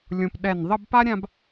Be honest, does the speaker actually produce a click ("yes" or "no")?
no